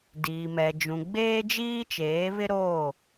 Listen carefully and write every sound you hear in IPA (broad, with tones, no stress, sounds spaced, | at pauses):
d iː˨ m ɛ˨ d͡ʒ ũ˨ ɡ͡b eː˦ d͡ʒ iː˦ t͡ʃ eː˨˦ β ɪ˦ ɾ oː˦˨